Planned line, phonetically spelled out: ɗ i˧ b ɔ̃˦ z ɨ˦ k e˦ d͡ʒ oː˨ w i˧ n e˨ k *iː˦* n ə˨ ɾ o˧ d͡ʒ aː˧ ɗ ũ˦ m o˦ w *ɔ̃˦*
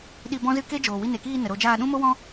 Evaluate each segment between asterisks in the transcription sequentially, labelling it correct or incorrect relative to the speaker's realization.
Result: incorrect: iː˧, correct

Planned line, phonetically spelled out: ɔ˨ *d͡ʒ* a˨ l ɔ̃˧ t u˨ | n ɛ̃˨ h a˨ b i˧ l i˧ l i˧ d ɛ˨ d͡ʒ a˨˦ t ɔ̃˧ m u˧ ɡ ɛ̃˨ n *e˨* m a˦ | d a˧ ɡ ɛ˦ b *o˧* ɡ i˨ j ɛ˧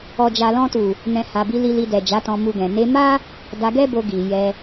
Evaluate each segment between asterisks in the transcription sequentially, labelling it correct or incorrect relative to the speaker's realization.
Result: correct, incorrect: e˧, correct

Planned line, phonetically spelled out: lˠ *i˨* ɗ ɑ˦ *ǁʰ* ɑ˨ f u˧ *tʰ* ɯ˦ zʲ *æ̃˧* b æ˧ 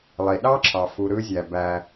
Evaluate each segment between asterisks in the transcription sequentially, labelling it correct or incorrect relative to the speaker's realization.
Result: correct, correct, incorrect: ɾ, incorrect: æ˧

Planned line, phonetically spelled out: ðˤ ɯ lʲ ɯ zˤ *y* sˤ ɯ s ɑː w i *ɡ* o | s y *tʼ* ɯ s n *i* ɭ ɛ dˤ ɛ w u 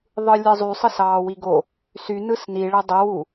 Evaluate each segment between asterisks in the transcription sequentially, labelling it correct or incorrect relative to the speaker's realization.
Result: correct, correct, incorrect: n, correct

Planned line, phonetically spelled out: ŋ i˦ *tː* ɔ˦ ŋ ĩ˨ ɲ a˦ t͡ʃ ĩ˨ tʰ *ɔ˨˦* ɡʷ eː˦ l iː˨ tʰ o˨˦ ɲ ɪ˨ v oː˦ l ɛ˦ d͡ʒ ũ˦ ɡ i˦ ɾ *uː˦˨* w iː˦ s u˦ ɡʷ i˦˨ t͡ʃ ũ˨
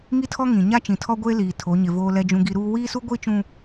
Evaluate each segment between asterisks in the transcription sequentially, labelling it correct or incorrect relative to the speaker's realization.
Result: incorrect: tʰ, incorrect: ɔ˦, incorrect: uː˦

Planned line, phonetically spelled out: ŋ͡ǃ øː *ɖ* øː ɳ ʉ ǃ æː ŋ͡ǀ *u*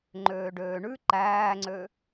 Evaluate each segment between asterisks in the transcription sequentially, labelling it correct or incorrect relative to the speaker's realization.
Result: correct, incorrect: ø

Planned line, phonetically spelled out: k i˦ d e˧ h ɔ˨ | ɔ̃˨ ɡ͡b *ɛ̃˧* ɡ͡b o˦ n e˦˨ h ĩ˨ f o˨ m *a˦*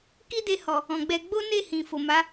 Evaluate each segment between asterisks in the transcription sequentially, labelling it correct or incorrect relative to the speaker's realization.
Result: incorrect: ɛ˧, incorrect: a˨˦

